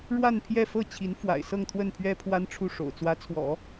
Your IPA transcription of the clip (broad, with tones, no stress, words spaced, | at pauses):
ɻwa˥˧n pʰjɛ˥˧fɤ˥˩t͡ɕʰi˧˥n fwa̰˨˩ɪ̯sɤ˥˧ŋt̪ʰwə˥˩npʰɥɛ˥ pʰwa˥nʈ͡ʂʰu˥˩ ʂo̰˨˩ʊ̯t͡swä˧˥t͡sʰwɔ̰˨˩˦